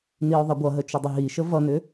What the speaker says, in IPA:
n i ʊ̯ ðˤ ə ɡʷ ʌ ɦ ə t͡ʃ ʏ dˤ ə ɦ i ʃ ə v ʌ n ʏ

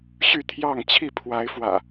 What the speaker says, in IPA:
ɕ y˥˨ t̪ʰ j ɑ˥˨ ŋ t͡ɕʰ i˥˨ pʰ w a˨˦ ɪ̯ f w ä̰˨˩

